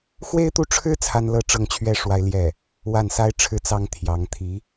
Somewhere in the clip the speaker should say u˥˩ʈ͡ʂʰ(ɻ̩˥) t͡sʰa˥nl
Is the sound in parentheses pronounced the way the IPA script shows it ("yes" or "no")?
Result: yes